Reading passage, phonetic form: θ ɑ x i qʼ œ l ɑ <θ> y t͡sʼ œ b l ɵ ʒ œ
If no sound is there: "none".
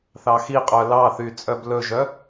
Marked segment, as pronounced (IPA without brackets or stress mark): θ